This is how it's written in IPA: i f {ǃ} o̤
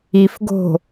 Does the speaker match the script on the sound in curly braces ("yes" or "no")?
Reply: no